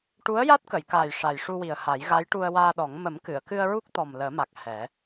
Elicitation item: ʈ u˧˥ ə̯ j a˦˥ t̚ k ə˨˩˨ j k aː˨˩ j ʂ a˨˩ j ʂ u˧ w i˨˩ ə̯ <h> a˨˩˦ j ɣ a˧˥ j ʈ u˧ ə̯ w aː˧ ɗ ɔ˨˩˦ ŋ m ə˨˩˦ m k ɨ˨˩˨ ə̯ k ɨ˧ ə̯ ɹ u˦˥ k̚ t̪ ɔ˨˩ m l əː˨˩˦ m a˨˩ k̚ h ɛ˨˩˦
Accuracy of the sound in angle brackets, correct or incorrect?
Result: correct